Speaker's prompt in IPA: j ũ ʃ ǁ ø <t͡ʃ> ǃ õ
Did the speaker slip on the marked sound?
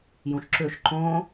yes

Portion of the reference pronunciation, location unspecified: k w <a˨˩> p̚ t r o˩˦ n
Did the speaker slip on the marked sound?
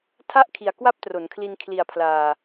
yes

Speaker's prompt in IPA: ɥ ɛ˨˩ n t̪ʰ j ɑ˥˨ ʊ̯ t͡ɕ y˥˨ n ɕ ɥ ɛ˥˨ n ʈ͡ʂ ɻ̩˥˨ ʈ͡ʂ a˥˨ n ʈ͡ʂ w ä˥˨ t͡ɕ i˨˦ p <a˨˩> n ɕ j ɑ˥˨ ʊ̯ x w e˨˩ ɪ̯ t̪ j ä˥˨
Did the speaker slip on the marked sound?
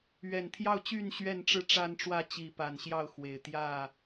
no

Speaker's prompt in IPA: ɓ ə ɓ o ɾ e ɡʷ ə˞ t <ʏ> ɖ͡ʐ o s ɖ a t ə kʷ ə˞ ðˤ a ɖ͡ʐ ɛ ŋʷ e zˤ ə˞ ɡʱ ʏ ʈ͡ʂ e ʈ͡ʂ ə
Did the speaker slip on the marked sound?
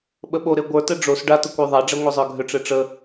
yes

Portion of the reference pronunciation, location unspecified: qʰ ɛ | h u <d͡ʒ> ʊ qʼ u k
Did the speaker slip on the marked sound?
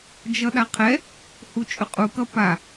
yes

